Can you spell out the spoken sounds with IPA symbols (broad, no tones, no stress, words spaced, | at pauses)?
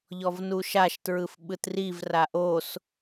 ʎɔvnuʃaʃ tɹɯfɓɯtriv raʔos